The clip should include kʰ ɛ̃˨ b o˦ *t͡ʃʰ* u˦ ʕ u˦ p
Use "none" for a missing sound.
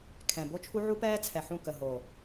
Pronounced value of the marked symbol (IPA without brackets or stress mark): t͡ʃʰ